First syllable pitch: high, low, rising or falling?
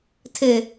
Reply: high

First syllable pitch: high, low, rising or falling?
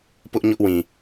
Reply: high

